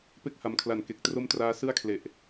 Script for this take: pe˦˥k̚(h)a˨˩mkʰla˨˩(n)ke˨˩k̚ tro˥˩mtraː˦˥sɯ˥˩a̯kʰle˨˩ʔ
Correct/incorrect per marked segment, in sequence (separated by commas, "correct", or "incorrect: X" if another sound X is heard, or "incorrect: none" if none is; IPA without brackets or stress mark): correct, correct